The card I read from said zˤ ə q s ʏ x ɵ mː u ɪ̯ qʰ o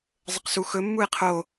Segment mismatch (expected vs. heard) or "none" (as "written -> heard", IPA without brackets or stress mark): ʏ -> u